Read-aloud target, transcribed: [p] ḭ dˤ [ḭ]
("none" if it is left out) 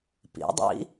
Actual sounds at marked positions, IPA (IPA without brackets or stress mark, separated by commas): p, ḭ